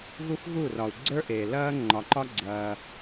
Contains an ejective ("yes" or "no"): no